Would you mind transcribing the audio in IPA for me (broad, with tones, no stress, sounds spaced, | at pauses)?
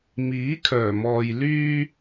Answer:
m iː˨˥ kʰ œː˨˩ m ɔː˨ j l yː˥